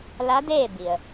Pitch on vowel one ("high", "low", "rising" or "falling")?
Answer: rising